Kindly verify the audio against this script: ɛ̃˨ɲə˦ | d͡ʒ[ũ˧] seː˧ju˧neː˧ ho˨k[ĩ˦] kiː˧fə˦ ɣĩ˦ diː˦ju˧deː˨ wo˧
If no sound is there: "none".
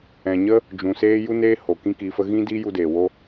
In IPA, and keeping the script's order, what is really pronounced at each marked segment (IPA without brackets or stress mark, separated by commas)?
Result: ũ˨, ĩ˦